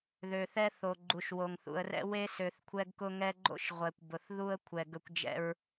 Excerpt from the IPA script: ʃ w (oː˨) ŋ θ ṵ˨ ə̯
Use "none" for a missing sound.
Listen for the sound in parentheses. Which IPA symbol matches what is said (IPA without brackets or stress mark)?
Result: o˨